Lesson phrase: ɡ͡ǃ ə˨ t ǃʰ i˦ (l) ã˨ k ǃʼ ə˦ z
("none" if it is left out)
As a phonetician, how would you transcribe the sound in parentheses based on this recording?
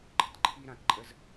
ɾ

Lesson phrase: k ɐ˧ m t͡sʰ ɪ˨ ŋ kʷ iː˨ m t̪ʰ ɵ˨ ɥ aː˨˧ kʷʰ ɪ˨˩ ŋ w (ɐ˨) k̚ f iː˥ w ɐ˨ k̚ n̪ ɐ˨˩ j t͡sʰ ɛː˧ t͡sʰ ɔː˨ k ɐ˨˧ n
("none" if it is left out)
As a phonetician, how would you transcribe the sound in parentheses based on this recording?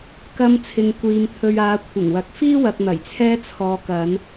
ɐ˨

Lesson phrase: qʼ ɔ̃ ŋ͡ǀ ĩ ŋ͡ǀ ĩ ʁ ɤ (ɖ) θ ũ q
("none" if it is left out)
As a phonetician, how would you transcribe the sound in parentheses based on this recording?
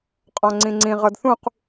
d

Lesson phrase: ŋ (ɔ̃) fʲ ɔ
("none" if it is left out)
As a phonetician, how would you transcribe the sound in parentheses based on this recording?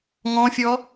ɔ̃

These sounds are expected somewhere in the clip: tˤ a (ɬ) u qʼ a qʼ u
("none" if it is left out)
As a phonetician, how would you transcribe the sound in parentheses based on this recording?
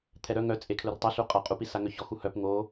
ɬ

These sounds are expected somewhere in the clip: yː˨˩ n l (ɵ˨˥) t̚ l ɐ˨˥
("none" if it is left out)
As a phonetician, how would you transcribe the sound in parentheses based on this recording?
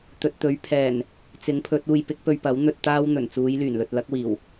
ɵ˨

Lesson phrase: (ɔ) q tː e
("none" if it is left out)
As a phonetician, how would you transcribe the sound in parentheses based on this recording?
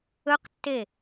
ɵ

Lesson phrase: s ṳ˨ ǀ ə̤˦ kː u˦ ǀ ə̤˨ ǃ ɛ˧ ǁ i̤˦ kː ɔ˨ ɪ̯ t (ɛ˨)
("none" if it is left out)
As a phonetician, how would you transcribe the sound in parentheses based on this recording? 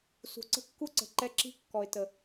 ə˨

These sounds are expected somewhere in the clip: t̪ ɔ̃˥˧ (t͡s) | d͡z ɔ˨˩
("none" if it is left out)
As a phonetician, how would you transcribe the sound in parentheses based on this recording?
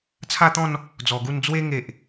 n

